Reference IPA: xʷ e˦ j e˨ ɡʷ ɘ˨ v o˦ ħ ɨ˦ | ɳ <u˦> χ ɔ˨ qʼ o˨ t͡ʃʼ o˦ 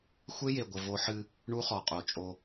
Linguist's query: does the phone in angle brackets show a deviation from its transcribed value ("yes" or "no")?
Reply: no